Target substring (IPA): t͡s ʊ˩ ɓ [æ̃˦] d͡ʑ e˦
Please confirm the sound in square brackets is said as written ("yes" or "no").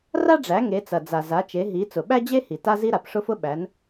no